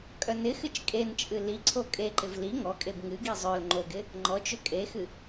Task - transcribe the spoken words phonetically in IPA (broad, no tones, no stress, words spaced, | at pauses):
kʼœnɪxɨt͡ʃ kʼent͡ʃʼɨ li ǀʰokʼeǃɪv li ŋɔkʼeb ŋɨɡi zˤœl ŋ͡ǃoɡɪ | ŋ͡ǃɔt͡ʃø kʼexɨ